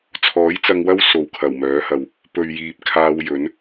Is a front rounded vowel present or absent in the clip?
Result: present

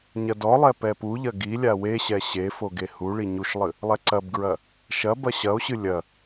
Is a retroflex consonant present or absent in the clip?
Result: present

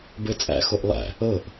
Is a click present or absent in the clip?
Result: absent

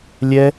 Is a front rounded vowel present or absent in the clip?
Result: absent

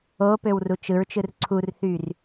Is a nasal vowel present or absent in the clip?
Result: absent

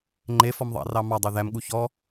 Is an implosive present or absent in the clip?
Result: present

